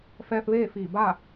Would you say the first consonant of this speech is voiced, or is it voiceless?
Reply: voiceless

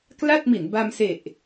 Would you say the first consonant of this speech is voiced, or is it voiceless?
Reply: voiceless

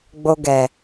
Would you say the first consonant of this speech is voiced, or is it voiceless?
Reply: voiced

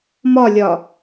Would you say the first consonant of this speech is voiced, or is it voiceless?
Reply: voiced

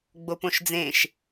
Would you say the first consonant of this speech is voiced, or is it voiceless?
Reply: voiced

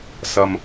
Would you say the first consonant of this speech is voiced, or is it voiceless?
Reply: voiceless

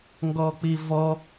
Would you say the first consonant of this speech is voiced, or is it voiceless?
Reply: voiced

